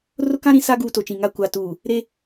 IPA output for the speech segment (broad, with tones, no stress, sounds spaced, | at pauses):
r ʊ˦ k ã˦ ɾ ĩ˨ s a˦ ɡ uː˦ t o˨ t͡ʃ ĩ˨ ŋ a˨ kʷ a˨ t uː˨ | ɾ e˦